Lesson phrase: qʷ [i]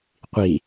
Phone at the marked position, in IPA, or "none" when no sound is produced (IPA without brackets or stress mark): i